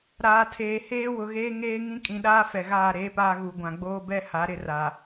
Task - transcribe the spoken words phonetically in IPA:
ɾ aː˨ tʰ eː˨ h eː˦ w ʊ˨ ɣ eː˦ ŋ eː˦ ŋ ĩ˦ kʼ ĩ˨ ɗ aː˦ f ɛ˨ ɣ aː˦˨ ɾ eː˦ p aː˦ ɣ u˨ ɡʷ ã˨ ɡ͡b oː˦ b ɛ˦ h a˨˦ ɾ ɪ˦ r a˨

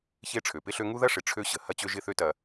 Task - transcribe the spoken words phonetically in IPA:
ç e˦ ʈ͡ʂʰ ø˨ p ɪ˦ ɬ ø˦ ŋ u˦ ð ɐ˦ ʂ ɪ˨ ʈ͡ʂʰ ø˦ ɕ ə˨ h ɐ˦ t͡ɕ ø˦ ʒ ɪ˦ θ ø˦ t ɐ˦

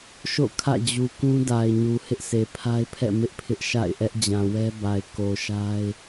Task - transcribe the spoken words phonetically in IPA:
ʃ o̰˦˨ kʰ ä̰˦˨ d͡ʑ u˨ k ũ˦ d a˨ ɪ̯ ɲ u˨ h ɪ˦ ʔ s e˨ pʰ a˦ ɪ̯ pʰ ɛ̰˦˨ m ɪ˦ ʔ pʰ ɪ˦ ʔ ʃ a̰˦˨ ɪ̯ ʔ ɛ˦ ʔ d͡ʑ ã˨ w ɛ˦ b a˨ ɪ̯ k o˨ ʃ a˦ ɪ̯

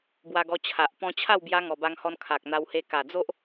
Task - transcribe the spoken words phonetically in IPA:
b w a˧ ɡ ɔ˧ t͡ɕʰ a˨ ʔ p ɔ̃˧ t͡ɕʰ a˥˧ w b j a˧ ŋ ɔ˨˩ b a˧ ŋ h ɔ˧ n kʰ a˨ k̚ n̪ a˧ w h e˧ k a˨˩ d͡z o˦ ʔ

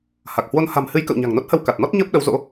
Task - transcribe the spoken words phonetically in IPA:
h a˨˩ k̚ h w o˧ n h a̤˨˩ m h ɨ˨˦ j k ə̰˧˨ w ɲ a̤˨˩ ŋ n o˦˥ t̚ h ə˧ w k a˨˩ t̚ n ɔ˦˥ t̚ ɲ əː˦˥ p̚ ɗ ə˨˦ w z o̰˧˥

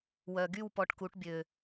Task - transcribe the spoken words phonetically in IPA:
w œ˩ ɡ y˥˩ w p ɔ˧ ʈ k u˩˥ ʈ bʲ ø˩

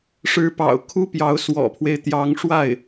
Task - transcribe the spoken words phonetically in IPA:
ʂ ɻ̩˧˥ p ɑ̰˨˩ ʊ̯ kʰ u˥ p j ɑ˧˥ ʊ̯ s w ɔ̰˨˩ pʰ w e˦ ɪ̯ t̪ j ɑ˧˥ ŋ ʂ w a˥˩ ɪ̯

